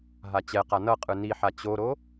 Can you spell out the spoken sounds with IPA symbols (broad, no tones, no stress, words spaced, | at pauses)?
ɦat͡ɕɛqa nʌqʼɯ niħa t͡ɕoɾo